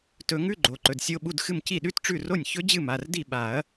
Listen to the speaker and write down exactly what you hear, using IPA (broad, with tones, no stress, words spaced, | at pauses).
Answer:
tɵ˨˩˦ŋʉ˧˥˧ ɡ͡ǃo˩˧˩ǃɵ˩˧˩dsʲo˧˥˧ ɓu˧˥˧dxɨ˥˩m ci˥˩ɗʉ˦˥tʈ͡ʂʉ˥˩ro˥˩nʲ çɵ˦˥d͡ʑɨ˥˩ma˩˧˩rdi˥˩ ɓa˨˩˦ɐ̯